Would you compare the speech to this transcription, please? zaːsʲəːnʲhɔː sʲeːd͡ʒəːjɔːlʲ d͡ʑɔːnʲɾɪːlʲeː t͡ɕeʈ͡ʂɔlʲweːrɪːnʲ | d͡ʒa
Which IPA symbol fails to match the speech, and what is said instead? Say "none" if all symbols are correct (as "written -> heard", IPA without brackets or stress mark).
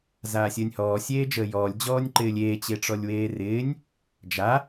ɾ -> ǃ